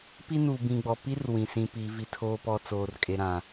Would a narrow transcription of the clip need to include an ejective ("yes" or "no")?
yes